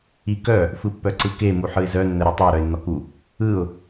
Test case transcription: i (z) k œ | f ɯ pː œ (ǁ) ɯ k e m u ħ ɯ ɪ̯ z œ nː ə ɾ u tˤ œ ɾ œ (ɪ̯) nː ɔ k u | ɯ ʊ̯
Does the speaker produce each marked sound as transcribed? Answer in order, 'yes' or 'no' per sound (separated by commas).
no, no, yes